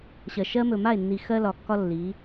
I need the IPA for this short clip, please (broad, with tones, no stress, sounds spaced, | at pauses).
ɕ ɜ˨ ʃ ɜ˦ m ɵ˨ m a˦˨ e̯ nː i˨ x ɜ˦ l ɒ˨ kː ɒ˦ lː i˨˦